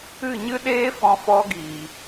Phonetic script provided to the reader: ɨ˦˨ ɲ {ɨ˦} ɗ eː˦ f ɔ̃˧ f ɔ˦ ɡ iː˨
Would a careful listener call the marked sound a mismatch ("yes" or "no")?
no